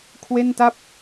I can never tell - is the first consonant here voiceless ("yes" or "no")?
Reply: yes